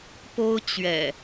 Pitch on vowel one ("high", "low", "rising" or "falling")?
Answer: high